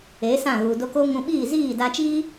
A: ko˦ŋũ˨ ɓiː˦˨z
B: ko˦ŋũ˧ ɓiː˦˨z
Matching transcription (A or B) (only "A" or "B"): B